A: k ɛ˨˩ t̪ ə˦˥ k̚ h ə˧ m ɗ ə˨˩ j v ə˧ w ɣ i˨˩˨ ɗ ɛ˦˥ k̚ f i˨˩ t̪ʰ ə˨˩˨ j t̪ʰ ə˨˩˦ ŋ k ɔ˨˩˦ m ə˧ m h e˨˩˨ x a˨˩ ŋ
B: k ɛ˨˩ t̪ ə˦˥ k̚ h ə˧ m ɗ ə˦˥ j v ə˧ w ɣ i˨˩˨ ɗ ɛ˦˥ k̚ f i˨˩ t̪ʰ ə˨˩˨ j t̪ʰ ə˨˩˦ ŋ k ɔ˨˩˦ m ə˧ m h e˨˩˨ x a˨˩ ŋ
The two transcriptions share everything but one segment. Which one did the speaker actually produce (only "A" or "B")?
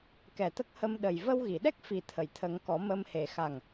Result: A